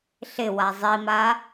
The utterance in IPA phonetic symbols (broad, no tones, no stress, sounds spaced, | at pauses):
ɬ ɪ w a zˤ i m a